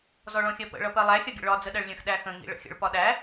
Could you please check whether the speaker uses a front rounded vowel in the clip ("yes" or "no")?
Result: no